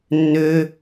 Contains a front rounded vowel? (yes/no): yes